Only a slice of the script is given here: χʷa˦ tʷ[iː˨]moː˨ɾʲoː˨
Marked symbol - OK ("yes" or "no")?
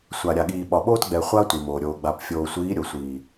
no